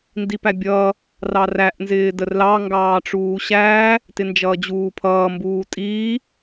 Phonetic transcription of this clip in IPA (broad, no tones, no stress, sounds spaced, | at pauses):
n d i p æ bʲ ʌː | r ɑ r æ ʔ n z ɪː d ə r l ɑ ŋ ɡ ɑː ʈ͡ʂ uː ɕ æː | t ɪ n d͡ʒ ʌː d͡ʑ uː pʰ ʌː m b uː tʼ iː